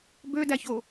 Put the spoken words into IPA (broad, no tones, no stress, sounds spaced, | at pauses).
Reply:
b ø d æ ç o